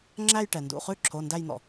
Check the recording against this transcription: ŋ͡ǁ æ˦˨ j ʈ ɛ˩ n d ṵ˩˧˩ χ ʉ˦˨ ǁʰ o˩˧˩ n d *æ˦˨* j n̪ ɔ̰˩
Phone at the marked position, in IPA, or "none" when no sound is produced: æ˦˨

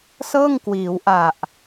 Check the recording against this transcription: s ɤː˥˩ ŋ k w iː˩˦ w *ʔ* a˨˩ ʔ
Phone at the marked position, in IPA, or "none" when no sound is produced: ʔ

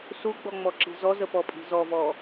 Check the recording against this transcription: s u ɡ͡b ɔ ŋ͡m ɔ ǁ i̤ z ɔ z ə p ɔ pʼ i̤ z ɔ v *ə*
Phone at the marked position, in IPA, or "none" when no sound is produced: ɔ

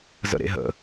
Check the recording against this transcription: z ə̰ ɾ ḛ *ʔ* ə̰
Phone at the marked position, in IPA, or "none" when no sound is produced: ɦ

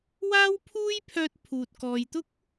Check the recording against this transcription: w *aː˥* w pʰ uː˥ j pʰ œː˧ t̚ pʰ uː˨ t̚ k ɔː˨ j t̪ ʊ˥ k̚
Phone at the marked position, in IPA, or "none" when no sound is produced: aː˥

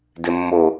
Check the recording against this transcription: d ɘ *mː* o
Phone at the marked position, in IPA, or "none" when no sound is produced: mː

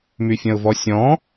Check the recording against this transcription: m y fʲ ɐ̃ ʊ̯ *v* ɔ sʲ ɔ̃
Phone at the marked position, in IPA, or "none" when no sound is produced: v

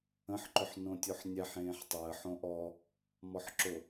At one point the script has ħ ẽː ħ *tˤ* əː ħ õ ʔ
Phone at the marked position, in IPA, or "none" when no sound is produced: tˤ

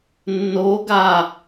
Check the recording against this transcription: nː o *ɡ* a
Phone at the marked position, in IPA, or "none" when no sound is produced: ɡ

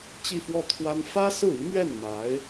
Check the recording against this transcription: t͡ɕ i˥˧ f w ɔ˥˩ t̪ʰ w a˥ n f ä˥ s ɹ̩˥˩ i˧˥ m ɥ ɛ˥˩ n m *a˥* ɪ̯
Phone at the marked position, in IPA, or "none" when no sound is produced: a˧˥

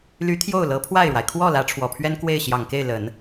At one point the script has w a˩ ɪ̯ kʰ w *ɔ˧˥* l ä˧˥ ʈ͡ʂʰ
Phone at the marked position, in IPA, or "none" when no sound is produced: ɔ˥˩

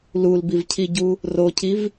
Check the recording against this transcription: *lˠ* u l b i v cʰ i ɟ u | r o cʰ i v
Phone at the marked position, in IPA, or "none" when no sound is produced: l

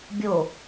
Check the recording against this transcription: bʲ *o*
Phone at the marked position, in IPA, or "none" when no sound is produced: o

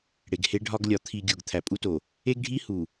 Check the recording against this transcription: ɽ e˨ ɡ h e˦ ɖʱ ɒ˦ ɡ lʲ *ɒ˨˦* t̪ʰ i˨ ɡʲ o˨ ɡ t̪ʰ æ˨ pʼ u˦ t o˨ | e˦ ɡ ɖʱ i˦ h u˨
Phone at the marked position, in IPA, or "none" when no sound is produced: ɒ˨˦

